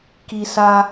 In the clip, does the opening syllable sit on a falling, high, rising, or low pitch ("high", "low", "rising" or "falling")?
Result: low